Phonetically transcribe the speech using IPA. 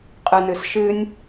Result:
qʼ ɨ n ɨ s ʃ ɨ nʲ

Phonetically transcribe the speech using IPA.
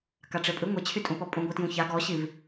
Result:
k a ʈ͡ʂ e pʼ ɨ ŋʷ e t͡ɕʰ y tʼ ũ p ɔ pʼ ũ ɡʷ i t j ũ ç a ɡ ɔ ɕ i v

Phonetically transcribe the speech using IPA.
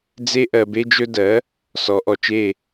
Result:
d͡z e˥ ʔ ɜ˧ b e˥ d͡ʒ ɵ˥ d ɜ˩˥ | s ɔ˩˥ ʔ ɔ˩ t͡ʃ e˥˩

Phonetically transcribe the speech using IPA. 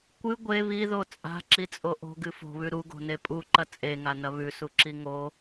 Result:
kʷ ɨ ɡʷ e β i ð o t͡sʼ a̤ ǁ i t͡sʼ o ʔ o̤ ɡ ɨ f o̤ β ʉ ɾ u ɡ o̤ n e pʼ u ǃ ɐ t͡sʼ e ŋ a n ɐ β ʉ s u ǁ i ŋ o

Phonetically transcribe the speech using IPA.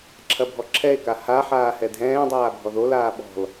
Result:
ǁʰ ɐ bʱ ɔ ǁʰ ɛ e̯ k a h a ħ aː h ɛ dʱ ɛ̃ː dˤ aː bʱ ɔ ð o l aː ɓ ɔ̤ l

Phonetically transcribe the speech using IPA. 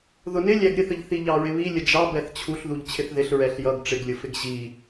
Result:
ð ʊ n ɪ lʲ æ ɡ ɾʲ ə θ ə ʎ θ i ʎ ɑ ɹ ɪ β i lʲ ə d͡ʒ ɑ b ɛ θ t͡ɕʰ u ɬ ð u ʎ t͡ɕʰ ɪ θ ð ɪ ɬ ɹ ɛ ɬ j ʌ ɡ ʈ͡ʂ ɪ ɡ lʲ ʊ f ɪ ɡ ʑ i

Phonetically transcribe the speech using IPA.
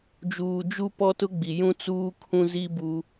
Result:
d͡ʒ uː˨ d͡ʒ u˦ p ɔ˦ t ʊ˦ ɡ͡b i˨ j ũ˦ t͡s uː˦ kʰ ũ˦ z i˦ b u˦

